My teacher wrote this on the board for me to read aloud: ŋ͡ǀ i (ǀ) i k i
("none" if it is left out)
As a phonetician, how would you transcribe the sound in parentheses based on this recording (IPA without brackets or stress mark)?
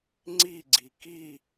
ɡ͡ǀ